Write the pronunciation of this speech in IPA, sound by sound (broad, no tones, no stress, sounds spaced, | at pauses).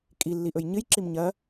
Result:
kʼ i lː i ʔ ɵ j ɲ ɨ j ǁ i m ɲ ɐ